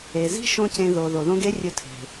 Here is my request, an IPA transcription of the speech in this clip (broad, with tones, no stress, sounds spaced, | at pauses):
e˨ z i̤˦ ʃ õ˦ c ẽ˧ ð o˨ ð o˨ ð õ˦ ɡ e˦ rʲ ɵ˧ tʰ e̤˨